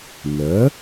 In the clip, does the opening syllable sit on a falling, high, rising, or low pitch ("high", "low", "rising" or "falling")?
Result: rising